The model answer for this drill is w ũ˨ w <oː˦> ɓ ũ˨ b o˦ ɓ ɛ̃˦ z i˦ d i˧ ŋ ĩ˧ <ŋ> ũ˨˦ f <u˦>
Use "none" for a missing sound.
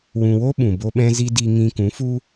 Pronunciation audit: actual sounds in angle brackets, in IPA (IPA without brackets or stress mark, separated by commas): o˦, k, u˦